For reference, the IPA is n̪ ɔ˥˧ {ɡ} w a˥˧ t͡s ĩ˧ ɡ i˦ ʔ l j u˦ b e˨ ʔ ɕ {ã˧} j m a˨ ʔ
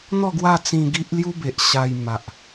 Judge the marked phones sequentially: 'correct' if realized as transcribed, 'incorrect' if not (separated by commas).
correct, incorrect